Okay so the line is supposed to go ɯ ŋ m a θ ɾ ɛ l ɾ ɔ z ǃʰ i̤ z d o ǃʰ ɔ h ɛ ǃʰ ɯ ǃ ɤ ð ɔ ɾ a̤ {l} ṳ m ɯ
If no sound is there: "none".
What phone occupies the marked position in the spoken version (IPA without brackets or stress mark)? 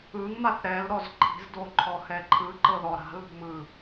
l